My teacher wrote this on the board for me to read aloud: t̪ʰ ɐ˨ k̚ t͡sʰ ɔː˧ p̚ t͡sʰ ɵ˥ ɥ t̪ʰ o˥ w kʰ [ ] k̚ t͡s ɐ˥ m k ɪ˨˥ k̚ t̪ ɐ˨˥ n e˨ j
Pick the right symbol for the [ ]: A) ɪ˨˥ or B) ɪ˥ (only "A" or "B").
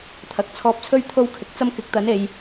A